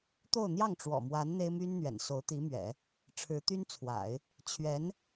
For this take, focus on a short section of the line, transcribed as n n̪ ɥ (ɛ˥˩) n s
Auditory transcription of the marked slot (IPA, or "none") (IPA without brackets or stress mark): ɛ̰˨˩